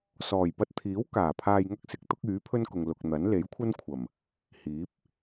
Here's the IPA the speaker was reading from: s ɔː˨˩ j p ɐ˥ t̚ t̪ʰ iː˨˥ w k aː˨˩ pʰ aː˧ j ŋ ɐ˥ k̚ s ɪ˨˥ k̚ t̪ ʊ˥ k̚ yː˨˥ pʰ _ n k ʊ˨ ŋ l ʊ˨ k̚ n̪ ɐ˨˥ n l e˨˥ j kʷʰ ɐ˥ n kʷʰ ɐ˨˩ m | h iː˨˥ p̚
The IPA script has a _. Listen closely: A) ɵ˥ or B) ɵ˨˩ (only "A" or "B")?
A